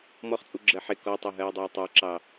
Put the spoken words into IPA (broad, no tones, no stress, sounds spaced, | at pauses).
m ɔ χ t͡sʼ u ɡ͡ǁ ɜ ħ ɪ k ɔ tˤ ɛ ɦ ɜ e̯ dˤ ɑ e̯ tˤ ɑ ǁ ɑ